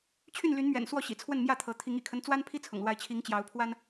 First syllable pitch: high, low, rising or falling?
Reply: falling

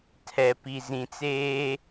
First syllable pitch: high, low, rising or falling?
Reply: low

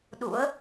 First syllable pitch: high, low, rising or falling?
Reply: rising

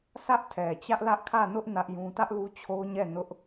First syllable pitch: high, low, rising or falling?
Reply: high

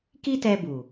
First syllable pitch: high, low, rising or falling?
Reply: high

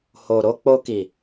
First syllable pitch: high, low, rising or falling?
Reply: low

